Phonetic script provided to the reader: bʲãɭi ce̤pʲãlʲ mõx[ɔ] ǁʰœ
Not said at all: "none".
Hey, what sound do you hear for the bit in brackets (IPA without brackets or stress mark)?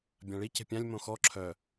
ɔ